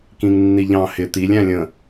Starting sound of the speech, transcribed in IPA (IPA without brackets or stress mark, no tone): k